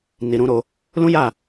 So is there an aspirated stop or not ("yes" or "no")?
no